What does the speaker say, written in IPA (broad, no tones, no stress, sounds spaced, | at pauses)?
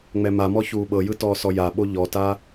ŋ͡m ɛ m a m ɔ ç uː ɓ ɤ j ɯ t ɔː s ɔ j a ɓ o ʎ ɔ t a